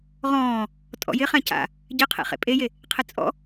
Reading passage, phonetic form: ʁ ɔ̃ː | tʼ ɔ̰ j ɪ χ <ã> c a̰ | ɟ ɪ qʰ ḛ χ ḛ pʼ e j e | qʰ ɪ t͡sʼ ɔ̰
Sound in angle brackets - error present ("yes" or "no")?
no